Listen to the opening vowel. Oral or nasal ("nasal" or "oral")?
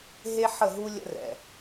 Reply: oral